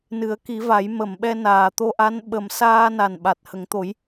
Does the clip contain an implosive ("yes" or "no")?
yes